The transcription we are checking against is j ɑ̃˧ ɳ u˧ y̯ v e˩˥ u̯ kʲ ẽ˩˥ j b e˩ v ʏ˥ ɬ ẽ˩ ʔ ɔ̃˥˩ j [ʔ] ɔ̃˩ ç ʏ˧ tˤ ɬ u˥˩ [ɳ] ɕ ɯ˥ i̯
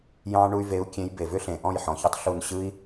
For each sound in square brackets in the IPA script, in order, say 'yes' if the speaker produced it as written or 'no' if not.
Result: no, no

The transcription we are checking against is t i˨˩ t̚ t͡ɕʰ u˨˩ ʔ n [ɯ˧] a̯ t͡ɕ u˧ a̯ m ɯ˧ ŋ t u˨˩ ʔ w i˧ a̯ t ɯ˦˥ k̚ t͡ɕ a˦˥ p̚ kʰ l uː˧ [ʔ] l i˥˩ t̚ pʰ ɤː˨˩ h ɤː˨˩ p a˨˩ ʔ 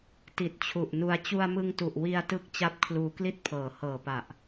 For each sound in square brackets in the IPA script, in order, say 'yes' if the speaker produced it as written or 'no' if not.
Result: no, no

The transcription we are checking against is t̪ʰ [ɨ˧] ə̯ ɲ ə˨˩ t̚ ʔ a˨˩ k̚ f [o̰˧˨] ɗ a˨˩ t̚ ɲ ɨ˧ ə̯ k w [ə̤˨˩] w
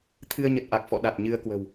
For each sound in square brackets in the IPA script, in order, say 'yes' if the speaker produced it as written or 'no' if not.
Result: yes, no, yes

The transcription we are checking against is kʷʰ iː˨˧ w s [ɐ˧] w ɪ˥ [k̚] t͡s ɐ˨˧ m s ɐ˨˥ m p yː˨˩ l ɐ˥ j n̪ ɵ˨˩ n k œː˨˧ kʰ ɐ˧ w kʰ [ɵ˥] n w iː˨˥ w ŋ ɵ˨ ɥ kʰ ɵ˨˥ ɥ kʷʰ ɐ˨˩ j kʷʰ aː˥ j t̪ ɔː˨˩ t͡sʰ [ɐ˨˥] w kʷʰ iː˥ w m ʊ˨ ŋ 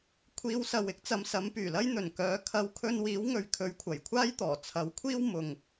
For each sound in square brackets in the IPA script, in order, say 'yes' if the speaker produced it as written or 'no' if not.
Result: no, yes, no, yes

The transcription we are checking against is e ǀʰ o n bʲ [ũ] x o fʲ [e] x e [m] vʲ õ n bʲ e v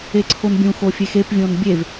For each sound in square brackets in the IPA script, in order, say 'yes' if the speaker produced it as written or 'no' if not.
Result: yes, yes, no

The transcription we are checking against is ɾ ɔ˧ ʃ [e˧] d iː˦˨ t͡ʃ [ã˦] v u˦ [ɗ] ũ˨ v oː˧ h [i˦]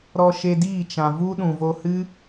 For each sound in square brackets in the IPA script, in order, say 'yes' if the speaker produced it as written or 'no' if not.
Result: yes, no, yes, no

